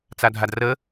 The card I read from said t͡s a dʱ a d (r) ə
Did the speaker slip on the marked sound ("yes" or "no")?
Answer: no